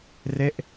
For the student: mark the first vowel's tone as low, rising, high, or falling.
falling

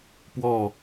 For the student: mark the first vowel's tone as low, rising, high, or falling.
falling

